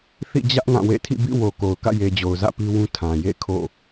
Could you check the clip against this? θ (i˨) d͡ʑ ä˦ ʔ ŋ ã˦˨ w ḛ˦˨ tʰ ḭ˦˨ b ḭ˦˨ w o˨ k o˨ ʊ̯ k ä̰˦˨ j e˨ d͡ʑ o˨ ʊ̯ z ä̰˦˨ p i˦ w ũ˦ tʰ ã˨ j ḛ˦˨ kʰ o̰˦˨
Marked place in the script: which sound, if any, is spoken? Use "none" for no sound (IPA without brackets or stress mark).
ḭ˦˨